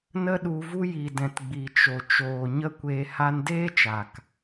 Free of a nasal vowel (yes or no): no